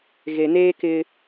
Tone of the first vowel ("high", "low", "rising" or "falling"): low